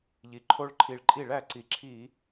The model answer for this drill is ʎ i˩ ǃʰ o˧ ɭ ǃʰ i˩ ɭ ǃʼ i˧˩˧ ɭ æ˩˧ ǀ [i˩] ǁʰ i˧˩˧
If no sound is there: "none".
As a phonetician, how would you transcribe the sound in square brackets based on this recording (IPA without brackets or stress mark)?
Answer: i˩